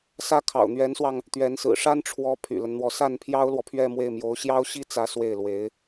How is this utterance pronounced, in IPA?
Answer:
s ä˥˩ kʰ ɑ̰˨˩ ʊ̯ n̪ ɥ ɛ˧˥ n s w ɑ˧ ŋ | t̪ ɥ ɛ˧˥ n s ɹ̩˨˩ ʂ a˥ n ʈ͡ʂʰ w ɔ˧˥ pʰ y̰˨˩ l ə˦ n n̪ w ɔ˧˥ s a˥˩ n pʰ j ɑ˥ ʊ̯ l w ɔ˨ pʰ ɥ ɛ˥˧ m w e˥˩ ɪ̯ m j o˧˥ ʊ̯ ɕ j ɑ˥ ʊ̯ ɕ i˥ t͡s ä˥ s w e˥˩ ɪ̯ l w e˧˥ ɪ̯

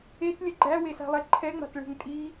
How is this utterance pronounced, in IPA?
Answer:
e t lʲ ə ɡ͡ǃ æ w e s a̤ lˠ ɛ ǃʰ ɛ ŋ͡m a̤ t ɭ e̤ ŋ tʼ i

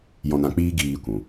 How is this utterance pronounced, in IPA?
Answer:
j ɔ̃˧ n ã˧ k͡p iː˦ ɡ iː˧ kʷ ũ˨

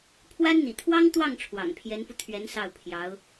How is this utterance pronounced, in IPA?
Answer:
pʰ w a˥ n n̪ ḭ˨˩ t̪ʰ w ɑ˥ ŋ t̪ w ɑ˥˩ ŋ ʈ͡ʂʰ w ɑ̰˨˩ ŋ pʰ j ɛ˧˥ n f u˧ t̪ʰ ɥ ɛ˧˥ n s ɑ˥˩ ʊ̯ pʰ j ɑ˧˥ ʊ̯

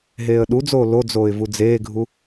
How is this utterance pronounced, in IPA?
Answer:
ɦ eː ə̯ ɗ u d͡z oː l o d͡z oː ɪ̯ v u d͡z eː ɡʱ u

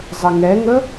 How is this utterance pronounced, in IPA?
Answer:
zˤ ə ŋ ɛ ŋ ə

